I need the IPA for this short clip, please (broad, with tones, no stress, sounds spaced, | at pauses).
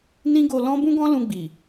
n ĩ˦ ɡ o˧ l ɔ̃˦ b ũ˦ ɡ ɔ̃˦ l ũ˧ ɡ͡b i˨